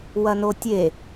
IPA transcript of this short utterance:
w ɐ n o tʲ e

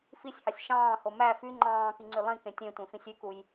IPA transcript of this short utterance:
f i sʲ h ɑ sʲ ʃ ɑ̃ː h o m æ f y ŋ͡ǃ ɑ̃ː k i ŋ͡ǀ y lˠ ĩ k ẽ tʲ ẽ tʷ ẽ f ĩ sʲ y k u j

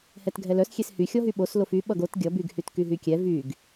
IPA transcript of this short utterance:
h ɛ t ɡʱ ɛ l œ s xʲ e s h y xʲ ɔ ɦ y ɓ o s l o f y ɓ ʌ ɡ o t ɡʲ ʌ b y ɡ h y t k y ɦ y kʲ ɛ v y ɡ

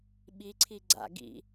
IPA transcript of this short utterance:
ɓ i ǀʰ i ɡ͡ǀ a̰ ɡ ḭ

